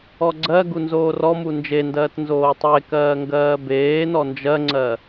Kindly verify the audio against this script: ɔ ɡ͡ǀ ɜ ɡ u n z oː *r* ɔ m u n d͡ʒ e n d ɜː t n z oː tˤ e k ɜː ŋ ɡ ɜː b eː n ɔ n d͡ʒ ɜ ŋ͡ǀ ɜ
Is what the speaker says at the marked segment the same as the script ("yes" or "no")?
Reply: yes